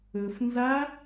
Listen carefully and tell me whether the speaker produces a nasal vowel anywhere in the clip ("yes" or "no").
no